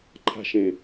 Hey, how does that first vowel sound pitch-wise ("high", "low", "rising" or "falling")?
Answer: high